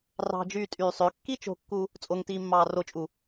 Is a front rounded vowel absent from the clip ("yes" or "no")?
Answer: no